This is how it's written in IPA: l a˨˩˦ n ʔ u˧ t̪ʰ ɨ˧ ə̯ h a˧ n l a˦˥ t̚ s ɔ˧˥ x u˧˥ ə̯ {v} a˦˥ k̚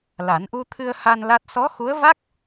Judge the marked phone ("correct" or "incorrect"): correct